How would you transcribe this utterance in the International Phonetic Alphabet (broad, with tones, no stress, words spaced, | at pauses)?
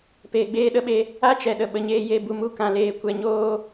peː˨ɡ͡beː˧ɗə˦ɓe˧ | a˦t͡ʃɛ˨ ɗə˨ɓə˨ɲeː˧je˧ bu˧mu˦ kã˧leː˧ kʷɛ˧ɲoː˦